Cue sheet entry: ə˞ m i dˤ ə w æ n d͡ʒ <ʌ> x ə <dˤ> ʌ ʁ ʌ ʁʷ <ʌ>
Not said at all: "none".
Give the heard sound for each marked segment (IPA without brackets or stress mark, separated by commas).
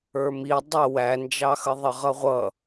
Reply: ɑ, ðˤ, ʌ